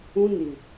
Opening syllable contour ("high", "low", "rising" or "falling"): high